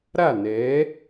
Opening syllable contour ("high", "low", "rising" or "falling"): falling